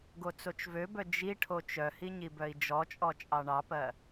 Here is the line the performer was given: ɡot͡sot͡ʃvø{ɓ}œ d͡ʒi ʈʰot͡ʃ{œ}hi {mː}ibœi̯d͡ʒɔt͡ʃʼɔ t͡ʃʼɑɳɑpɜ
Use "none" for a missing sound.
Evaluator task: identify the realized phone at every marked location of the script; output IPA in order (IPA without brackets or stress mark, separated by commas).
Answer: b, œ, ɲ